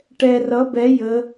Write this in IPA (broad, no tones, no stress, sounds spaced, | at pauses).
ʈ ɛ r ʌ b ɛ j ə